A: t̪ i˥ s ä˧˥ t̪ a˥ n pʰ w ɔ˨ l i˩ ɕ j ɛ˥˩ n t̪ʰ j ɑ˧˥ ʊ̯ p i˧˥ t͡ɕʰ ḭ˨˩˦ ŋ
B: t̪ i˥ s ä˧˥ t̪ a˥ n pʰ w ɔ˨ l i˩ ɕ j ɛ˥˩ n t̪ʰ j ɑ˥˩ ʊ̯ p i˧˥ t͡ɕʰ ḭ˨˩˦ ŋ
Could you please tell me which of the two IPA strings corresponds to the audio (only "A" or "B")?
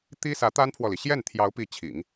A